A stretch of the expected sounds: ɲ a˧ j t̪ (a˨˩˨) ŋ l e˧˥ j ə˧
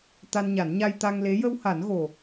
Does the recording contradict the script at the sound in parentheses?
yes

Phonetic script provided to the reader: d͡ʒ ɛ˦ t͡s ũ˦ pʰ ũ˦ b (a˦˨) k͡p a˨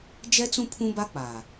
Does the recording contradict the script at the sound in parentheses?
yes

